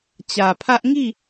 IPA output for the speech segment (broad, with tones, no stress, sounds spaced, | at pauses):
t͡ɕ ä˨ pʰ ä˦ ʔ ŋ i˦˨